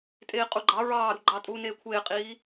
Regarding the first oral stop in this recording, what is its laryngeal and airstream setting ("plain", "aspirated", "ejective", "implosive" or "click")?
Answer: ejective